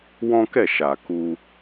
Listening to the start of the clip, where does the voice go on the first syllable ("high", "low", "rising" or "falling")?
high